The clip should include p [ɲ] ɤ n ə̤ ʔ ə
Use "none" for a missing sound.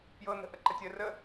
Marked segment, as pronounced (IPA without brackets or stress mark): j